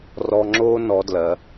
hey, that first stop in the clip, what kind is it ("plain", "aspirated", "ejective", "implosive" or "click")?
click